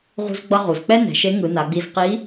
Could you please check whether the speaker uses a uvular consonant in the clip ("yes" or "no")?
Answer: yes